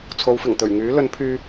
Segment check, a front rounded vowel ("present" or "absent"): present